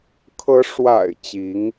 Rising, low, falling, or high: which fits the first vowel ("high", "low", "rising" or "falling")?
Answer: rising